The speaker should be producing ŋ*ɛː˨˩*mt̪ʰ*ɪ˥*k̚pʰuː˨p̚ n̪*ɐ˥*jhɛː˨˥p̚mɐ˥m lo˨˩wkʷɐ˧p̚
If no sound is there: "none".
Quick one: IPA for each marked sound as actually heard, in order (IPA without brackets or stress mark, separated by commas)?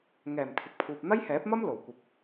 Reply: ɛː˨˩, ɪ˨, ɐ˥